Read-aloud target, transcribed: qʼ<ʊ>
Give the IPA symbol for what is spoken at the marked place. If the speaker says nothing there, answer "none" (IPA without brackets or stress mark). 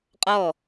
ɔ